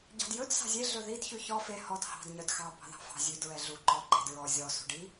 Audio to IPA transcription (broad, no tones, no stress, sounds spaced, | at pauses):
ɟ ɑ̤ d j ɵ d s ɑ̤ zʲ e ɮ ɵ ð i d ç ʉ ç ɔ f e h ɔ d h ɑ̤ d ɲ œ d x ɑ b ɑ̤ ð ɑ̤ f ɑ̤ zʲ ʉ d ɹ ɛ ɮ u ǃ ɔ ǃ e̤ d ɹ ɔ zʲ ɔ s ṳ ɖ i